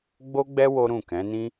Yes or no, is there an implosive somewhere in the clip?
no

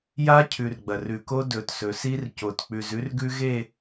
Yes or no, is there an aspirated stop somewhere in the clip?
yes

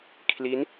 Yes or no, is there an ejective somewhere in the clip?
no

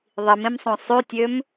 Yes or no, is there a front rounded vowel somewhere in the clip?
yes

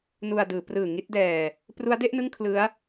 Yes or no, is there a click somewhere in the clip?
no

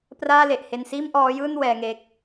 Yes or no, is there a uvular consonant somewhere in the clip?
no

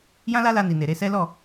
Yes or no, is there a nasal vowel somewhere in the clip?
yes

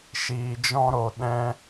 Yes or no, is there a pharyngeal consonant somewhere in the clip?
no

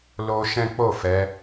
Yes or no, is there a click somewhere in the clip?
no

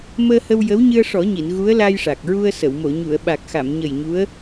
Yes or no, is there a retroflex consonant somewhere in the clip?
yes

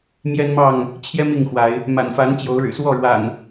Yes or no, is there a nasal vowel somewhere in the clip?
no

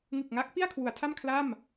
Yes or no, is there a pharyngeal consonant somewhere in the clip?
no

